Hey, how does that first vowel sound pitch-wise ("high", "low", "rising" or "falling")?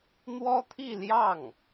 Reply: high